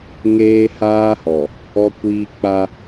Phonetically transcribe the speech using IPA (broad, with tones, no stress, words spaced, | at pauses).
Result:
ŋeː˦haː˦hɔ˨ | ɔ˦kʷiː˦ k͡pa˦